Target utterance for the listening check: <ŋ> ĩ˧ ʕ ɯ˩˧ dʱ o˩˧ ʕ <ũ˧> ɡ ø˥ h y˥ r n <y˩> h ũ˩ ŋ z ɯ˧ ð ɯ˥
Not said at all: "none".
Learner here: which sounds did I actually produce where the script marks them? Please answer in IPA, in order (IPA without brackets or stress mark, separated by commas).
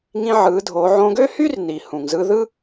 ŋ, õ˧, i˩